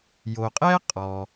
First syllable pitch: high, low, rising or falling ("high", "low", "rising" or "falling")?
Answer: low